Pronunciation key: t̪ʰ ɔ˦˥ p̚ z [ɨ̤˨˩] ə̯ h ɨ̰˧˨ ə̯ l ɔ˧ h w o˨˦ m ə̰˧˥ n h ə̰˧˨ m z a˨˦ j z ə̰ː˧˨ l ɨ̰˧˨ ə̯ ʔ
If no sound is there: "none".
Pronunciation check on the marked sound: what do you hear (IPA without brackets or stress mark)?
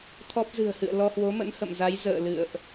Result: ɨ̤˨˩